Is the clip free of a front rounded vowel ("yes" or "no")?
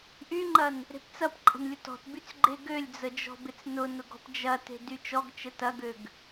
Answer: no